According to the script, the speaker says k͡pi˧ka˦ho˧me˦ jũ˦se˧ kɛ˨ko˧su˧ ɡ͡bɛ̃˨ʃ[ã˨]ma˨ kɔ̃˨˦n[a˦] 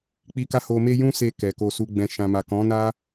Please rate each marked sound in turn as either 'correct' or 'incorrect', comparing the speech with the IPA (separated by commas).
correct, correct